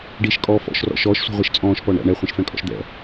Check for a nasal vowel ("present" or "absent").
present